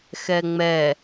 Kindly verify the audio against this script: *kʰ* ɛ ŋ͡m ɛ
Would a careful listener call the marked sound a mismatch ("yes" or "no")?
yes